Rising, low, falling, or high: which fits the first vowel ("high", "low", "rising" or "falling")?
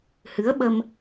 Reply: rising